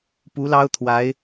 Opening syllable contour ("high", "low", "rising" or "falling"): rising